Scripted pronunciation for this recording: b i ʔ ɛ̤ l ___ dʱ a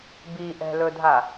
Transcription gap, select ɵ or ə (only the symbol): ɵ